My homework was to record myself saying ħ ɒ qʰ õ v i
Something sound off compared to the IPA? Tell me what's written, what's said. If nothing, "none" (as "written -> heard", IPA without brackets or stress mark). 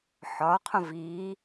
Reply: none